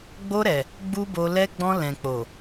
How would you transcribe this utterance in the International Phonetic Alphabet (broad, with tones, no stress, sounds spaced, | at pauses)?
ɡ͡b o˧ ɾ ɛ˨ | ɡ͡b u˦ b o˧ l ɛ˧ ɡ͡b ɔ̃˧ l ɛ̃˨ k͡p o˨